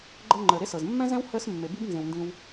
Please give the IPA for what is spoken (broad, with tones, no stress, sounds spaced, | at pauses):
ɡ͡ǃ ɤ˧ ŋ͡ǃ əː˨ ɾ e˦ s ɤ˨ z mː ɛ̃˦ z ɛ̃˦ w h əː˦ s mː e˨ b i˦ b n z ẽ˧ w n d ĩ˦ w